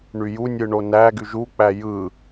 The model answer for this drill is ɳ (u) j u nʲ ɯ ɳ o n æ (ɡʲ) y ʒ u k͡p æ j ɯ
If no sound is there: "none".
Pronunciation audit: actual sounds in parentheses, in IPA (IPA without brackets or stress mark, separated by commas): y, ɡ